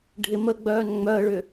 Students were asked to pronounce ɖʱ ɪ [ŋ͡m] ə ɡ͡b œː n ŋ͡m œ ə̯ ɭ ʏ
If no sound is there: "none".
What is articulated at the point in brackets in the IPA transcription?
m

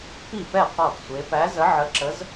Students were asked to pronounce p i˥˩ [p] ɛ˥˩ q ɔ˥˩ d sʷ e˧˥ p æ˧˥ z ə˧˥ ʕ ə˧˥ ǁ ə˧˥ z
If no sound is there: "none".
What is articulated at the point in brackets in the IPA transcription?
p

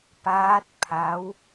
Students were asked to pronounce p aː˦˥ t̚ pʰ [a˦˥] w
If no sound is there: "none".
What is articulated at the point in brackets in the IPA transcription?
a˦˥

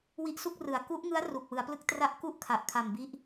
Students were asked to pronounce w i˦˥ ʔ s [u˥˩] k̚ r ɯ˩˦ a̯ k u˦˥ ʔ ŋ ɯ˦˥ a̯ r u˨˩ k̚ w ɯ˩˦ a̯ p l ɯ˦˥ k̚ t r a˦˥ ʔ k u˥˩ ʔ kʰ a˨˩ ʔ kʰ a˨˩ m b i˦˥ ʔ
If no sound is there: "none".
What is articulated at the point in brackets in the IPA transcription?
u˥˩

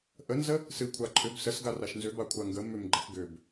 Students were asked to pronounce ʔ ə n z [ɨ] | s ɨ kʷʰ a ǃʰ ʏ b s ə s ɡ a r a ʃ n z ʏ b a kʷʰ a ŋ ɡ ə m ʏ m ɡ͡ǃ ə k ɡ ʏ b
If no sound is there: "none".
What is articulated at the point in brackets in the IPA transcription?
ə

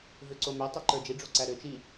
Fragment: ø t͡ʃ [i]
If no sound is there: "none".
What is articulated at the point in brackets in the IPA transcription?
i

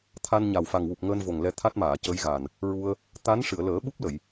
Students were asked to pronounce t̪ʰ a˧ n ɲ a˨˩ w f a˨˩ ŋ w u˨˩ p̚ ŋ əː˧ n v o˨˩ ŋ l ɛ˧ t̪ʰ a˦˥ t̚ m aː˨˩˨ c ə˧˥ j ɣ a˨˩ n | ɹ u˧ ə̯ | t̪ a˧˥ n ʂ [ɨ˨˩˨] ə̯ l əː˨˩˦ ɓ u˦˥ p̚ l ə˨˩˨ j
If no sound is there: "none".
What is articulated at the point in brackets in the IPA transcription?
ɨ˨˩˨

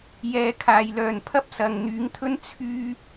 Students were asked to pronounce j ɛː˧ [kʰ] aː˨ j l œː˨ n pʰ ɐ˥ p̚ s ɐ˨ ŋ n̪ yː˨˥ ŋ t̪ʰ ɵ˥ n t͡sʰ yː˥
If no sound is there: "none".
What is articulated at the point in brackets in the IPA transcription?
kʰ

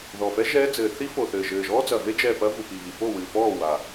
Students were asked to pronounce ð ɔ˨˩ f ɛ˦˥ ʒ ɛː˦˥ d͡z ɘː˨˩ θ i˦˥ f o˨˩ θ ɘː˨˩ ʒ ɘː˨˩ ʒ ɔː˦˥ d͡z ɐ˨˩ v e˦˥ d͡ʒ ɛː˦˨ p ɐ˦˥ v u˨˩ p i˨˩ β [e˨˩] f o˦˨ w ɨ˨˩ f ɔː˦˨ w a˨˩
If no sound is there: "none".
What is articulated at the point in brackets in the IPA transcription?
i˨˩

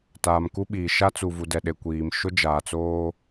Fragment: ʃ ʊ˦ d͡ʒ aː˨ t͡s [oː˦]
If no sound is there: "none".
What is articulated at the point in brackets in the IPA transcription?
oː˦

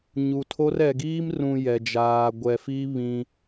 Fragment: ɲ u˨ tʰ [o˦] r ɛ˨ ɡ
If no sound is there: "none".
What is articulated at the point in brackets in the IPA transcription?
o˦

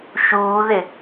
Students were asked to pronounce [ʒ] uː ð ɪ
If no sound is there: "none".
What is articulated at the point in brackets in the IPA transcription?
ʃ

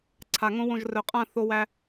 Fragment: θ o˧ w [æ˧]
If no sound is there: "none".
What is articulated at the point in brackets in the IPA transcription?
æ˧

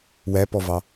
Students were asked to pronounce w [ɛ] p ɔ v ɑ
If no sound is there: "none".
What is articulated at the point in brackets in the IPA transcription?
æ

